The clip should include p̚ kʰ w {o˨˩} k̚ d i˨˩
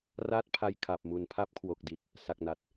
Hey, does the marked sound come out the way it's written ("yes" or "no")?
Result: yes